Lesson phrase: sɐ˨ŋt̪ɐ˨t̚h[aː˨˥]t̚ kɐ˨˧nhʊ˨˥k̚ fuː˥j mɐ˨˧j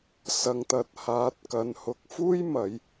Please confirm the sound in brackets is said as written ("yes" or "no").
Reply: yes